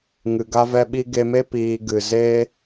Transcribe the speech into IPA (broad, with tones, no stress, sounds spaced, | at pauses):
ŋ ɨ˨ ɡ a˦ v ɛ˦ ɓ i˦ ɡ e˧ m e˦ p iː˧ ɡ ɨ˨ z e˦